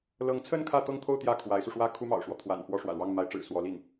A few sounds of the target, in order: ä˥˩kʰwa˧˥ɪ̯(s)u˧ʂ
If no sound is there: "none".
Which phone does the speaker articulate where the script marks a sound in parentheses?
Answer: s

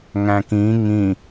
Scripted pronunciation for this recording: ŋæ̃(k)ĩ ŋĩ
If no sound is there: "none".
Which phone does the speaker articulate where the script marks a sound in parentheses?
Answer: k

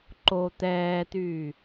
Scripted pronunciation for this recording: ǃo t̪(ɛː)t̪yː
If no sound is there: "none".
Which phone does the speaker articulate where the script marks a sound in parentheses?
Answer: ɛː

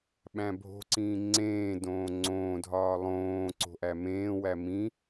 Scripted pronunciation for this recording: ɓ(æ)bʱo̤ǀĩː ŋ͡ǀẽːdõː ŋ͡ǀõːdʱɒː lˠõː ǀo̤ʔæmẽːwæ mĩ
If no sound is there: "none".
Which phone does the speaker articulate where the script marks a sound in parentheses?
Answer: æ̃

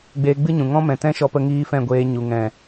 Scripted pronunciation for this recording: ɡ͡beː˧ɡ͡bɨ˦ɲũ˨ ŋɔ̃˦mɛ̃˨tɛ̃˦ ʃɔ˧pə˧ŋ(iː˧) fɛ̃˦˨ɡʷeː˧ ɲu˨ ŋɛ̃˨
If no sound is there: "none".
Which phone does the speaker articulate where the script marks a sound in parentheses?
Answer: iː˧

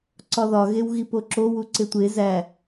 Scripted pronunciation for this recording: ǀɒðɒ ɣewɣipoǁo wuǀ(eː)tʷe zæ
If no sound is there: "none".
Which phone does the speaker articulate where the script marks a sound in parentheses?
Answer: e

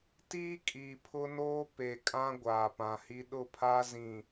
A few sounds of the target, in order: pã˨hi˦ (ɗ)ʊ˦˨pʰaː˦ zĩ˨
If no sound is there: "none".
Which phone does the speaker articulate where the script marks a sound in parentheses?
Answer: ɗ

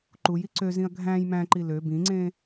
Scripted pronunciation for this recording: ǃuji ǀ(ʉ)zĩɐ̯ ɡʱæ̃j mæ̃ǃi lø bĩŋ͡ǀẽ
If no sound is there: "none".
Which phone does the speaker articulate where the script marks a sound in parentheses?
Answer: ø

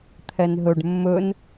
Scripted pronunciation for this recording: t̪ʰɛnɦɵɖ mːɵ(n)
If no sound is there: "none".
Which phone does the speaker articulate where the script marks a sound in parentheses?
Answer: n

